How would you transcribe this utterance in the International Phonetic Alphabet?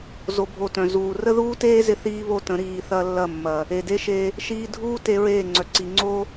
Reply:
z o˧ bʱ o˧ t œ̃˨ z uː˨ r ə˦ ð uː˦ t eː˦ z ɪ˧ θ iː˦ β o˦˨ t ə̃˨˦ ɾ iː˨ θ ɐ˧ lː ɐ˦˨ mː ɐ˨ | e˨ d e˦ ʃ e˧ | ʃ iː˧ dʱ uː˦ t e˧ ɹ eː˦˨ ŋ͡ǀ œ˨ ǀ i˨ ŋ͡ǀ o˦

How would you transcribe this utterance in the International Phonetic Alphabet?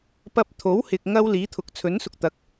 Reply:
p ɐ˧ p̚ t̪ʰ o˨˥ w h ɪ˨ k̚ ŋ ɐ˥ w l iː˨˥ t̪ʰ ʊ˨˥ k̚ t͡sʰ ɵ˨˥ n s ʊ˧ k̚ t̪ ɐ˨˥ k̚

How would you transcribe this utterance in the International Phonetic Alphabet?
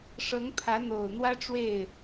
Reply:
ʂ ɤ˧˥ ŋ pʰ ä˧˥ n̪ o˨˩ ʊ̯ n̪ w ä˥ ʈ͡ʂ w e˥˩ ɪ̯

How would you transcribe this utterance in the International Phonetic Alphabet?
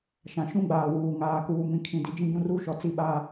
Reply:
ʃ ã˨ ʃ ũ˦ ɡ͡b aː˨ w uː˨ ŋ aː˨ k uː˨ m ĩ˨ kʰ ĩ˨ d i˨ d͡ʒ ĩ˦ ɡ ũ˦ r uː˦ ʃ ɔ˨ t͡s i˦˨ ɓ a˦

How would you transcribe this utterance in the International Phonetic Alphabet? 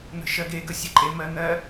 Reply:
n̪ ə̤ ʃ ɜ ɡ e ɡ ə sʲ e ǃʼ e m ɜ n̪ ɜ

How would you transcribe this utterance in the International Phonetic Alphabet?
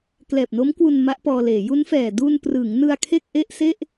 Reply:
k l ɛː˨˩ p̚ n o˦˥ m k w u˧ n m a˦˥ ʔ p ɔː˧ l eː˩˦ j u˦˥ n f ɛː˨˩ d u˧ n p r ɯ˩˦ ŋ n ɯ˧ a̯ kʰ e˥˩ k̚ ʔ e˥˩ ʔ s e˥˩ ʔ

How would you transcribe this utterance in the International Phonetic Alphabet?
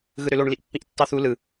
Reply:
ɣ ɯ ɾ ø l o ɳ l i ʔ pː ĩ ʔ tː ɑ θ u l ɯ

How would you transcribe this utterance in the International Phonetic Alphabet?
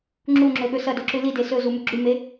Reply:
ŋ͡ǁ u ŋ͡ǁ ɵ ɠ ɵ s ɐ d o ǁ ʉ l i d e s ɵ z u m ʉ ɡ͡ǁ ʉ m e

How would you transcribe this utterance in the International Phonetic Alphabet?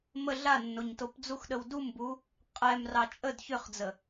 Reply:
m ə ɮ a nː o ɲ t o p d͡z u x ɗ ə w d u m b u | qʼ ɛ m r ɑ t͡ʃʼ ə d ç ʏ χ d͡z ə

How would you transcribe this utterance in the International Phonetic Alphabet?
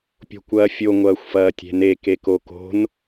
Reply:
pʲ o̤ kʷ ɐː fʲ o ŋʷ ɐː xʷ f ɐː tʲ e̤ n e k e k o k o̤ n

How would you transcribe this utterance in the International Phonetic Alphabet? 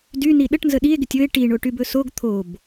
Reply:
d y n i ɗ ə ʈ n z ə ɗ i e̯ ɡ ɪ tʲ ɵ e̯ ʈ i ɳ o ʈ y b ɵ s o ɡ t̪ʰ o b

